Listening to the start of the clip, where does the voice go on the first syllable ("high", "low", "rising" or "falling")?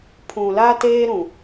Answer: low